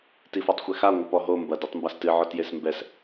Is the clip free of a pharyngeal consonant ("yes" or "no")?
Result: no